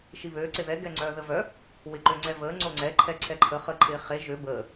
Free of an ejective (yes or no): yes